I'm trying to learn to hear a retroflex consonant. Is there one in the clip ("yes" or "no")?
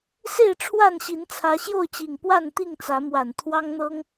yes